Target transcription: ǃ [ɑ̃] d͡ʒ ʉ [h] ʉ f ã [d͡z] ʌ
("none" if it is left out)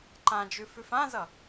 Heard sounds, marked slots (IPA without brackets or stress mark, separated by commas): ã, f, z